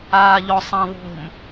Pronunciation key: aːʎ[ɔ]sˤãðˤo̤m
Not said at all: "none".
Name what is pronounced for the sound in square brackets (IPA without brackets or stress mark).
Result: ɔ